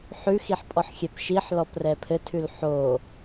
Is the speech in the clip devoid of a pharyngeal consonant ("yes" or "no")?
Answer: no